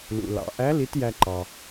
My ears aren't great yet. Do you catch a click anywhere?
yes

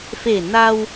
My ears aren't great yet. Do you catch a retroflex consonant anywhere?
no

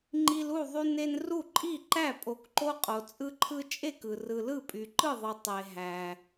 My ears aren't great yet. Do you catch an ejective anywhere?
yes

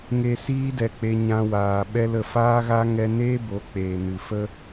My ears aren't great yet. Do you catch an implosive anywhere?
yes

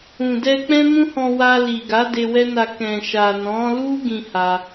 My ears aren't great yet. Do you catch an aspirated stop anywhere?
no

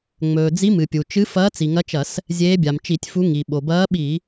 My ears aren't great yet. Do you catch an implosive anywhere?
yes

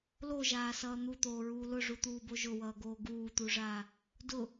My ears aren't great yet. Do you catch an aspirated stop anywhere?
no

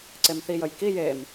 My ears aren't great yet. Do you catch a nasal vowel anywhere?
no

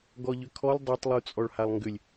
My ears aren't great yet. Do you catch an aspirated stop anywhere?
yes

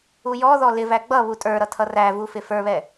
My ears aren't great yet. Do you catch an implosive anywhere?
no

